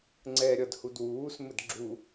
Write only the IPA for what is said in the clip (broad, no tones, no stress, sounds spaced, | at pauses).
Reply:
ŋ͡ǀ ɛː ɾʲ ʌ d h u d w uː s m ɘ d ɡ͡ǁ u